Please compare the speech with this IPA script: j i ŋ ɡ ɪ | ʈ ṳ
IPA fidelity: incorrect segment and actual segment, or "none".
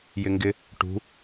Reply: i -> ɪ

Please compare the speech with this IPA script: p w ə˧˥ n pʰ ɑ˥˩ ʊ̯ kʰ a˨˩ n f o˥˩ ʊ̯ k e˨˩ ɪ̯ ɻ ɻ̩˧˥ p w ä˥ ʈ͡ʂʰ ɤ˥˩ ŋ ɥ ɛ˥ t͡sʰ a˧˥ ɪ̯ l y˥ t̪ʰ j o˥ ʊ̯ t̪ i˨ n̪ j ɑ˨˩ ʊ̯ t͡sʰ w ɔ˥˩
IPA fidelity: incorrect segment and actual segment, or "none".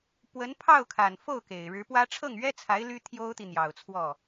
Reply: none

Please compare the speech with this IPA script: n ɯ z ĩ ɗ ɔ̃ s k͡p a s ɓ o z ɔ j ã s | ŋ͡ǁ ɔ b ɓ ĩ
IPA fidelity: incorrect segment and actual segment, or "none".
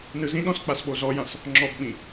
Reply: none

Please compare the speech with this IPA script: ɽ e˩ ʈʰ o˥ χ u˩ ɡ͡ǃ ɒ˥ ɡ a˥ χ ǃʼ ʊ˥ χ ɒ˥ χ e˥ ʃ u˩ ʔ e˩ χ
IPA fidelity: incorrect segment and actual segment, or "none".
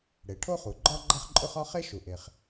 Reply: ɡ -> ɡ͡ǃ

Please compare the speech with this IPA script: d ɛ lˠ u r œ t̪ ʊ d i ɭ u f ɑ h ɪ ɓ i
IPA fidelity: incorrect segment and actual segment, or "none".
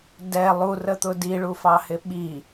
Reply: œ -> ə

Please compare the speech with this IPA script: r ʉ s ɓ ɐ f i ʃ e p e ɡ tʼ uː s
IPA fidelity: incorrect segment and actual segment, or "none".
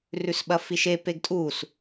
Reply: none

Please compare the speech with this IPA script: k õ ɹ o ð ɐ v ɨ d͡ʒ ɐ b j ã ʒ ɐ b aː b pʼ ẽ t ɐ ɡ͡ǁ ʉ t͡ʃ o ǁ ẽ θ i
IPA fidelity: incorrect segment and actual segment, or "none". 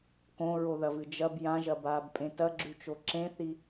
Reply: none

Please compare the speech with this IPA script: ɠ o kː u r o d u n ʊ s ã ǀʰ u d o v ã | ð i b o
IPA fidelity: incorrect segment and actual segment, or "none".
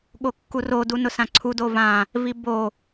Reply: ð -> v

